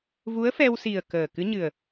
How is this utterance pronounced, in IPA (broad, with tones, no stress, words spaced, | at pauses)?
vu˧˥ə̯fɛ˧wsi˨˩ə̯ kəː˨˩ kɨ˧˥ɲɨ˨˩ə̯